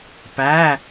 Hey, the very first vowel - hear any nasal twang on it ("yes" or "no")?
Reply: no